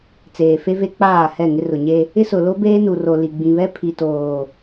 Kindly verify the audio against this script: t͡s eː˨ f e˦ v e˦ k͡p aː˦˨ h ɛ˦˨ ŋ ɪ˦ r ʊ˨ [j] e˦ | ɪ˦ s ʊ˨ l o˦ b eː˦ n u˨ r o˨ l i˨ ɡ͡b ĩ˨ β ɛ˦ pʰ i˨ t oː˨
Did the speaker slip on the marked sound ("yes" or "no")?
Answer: yes